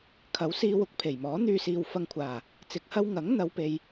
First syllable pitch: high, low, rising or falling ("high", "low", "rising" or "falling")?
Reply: rising